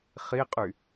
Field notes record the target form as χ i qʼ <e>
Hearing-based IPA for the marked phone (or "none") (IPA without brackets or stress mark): y